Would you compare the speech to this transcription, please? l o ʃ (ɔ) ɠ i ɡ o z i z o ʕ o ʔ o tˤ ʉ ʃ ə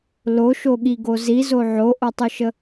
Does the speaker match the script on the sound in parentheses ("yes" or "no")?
no